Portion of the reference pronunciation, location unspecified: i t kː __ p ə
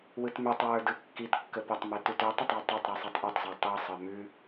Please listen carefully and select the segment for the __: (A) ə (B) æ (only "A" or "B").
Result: A